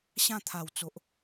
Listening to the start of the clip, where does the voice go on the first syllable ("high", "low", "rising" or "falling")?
falling